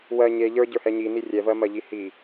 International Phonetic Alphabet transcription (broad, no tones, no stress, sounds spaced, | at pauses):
w ɜ ɲ e ʎ ə˞ ɟ ə˞ h ɛ ɲ i n i rʲ ɛ v ɜ m ɜ ʎ i h i